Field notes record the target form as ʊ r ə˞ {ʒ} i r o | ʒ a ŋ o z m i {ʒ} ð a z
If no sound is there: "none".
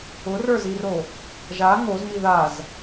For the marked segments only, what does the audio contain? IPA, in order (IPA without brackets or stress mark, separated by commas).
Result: z, none